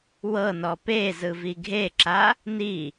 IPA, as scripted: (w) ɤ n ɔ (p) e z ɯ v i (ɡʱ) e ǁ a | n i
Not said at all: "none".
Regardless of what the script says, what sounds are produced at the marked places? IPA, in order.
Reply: w, p, ɡʱ

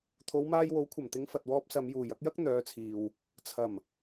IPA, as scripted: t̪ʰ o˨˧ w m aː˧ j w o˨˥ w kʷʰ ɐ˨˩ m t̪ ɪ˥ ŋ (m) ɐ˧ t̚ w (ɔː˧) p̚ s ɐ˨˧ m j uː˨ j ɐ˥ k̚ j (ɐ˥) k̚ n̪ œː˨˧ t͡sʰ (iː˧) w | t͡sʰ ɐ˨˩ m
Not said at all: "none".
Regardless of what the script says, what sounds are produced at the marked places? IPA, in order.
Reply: f, ɔː˥, ɐ˥, iː˨

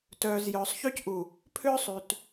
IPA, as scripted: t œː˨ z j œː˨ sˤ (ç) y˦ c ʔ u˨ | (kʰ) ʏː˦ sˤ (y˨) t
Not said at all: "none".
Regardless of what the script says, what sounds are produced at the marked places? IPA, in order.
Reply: ç, pʰ, y˨

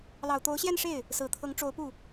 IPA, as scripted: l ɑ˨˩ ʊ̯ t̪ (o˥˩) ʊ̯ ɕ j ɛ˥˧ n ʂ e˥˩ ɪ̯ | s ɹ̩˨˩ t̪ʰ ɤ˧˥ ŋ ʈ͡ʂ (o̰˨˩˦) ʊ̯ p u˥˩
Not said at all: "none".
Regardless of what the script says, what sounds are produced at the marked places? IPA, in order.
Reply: o˧˥, o˧˥

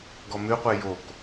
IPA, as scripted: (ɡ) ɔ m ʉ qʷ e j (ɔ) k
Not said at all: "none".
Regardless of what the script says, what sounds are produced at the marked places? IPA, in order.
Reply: ɡ, o

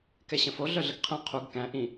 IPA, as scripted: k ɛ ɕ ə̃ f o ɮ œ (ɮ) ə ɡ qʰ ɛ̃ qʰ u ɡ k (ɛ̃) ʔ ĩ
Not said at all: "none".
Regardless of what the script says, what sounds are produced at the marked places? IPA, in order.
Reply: ɮ, æ̃

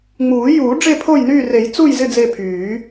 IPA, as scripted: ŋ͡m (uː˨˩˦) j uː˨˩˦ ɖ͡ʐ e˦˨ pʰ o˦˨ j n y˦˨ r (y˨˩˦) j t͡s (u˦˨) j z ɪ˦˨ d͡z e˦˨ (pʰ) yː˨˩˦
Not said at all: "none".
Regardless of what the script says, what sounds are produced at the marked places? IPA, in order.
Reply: uː˨˩˦, e˨˩˦, u˦˨, pʰ

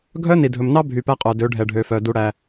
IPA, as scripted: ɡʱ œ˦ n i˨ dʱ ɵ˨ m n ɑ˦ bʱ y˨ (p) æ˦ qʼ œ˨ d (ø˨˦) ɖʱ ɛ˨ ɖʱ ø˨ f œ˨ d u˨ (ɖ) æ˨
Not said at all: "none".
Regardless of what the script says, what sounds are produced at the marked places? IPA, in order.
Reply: p, ø˨˦, ɽ

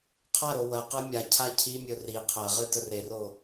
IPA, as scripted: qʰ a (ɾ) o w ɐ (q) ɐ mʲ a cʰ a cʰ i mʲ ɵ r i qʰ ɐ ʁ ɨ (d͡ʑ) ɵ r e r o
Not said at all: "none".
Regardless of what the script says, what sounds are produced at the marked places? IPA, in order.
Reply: ɾ, q, d

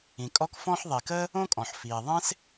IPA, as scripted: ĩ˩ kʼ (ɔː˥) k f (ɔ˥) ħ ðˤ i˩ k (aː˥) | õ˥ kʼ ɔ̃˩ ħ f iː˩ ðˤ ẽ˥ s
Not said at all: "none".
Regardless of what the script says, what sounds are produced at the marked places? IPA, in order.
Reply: ɔ˥, ɔ̃˥, əː˥

